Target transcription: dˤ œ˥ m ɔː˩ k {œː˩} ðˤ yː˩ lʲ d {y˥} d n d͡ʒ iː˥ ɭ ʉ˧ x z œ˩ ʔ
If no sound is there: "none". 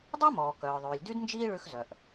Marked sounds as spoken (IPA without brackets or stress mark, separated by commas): œː˩, y˥